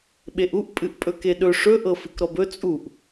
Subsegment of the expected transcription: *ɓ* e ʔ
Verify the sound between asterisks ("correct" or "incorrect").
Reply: correct